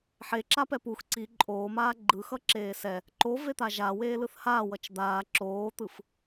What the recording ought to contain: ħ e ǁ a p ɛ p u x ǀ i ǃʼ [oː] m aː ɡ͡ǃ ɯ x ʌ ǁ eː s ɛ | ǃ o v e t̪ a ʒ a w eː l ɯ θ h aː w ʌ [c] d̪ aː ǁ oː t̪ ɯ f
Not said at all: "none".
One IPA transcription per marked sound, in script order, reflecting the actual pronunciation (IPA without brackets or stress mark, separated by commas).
oː, t͡ʃ